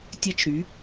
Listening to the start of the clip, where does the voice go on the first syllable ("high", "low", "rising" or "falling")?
high